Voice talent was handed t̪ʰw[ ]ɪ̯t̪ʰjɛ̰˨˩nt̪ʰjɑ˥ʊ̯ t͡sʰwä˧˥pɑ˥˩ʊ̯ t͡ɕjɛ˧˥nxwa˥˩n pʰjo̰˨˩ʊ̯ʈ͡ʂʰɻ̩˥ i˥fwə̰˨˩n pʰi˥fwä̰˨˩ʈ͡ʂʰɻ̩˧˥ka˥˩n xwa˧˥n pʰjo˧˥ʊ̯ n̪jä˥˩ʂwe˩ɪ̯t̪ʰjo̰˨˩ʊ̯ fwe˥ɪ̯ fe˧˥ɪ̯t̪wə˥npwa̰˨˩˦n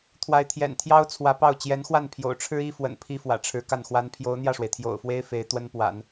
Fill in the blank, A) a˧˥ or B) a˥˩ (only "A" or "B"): A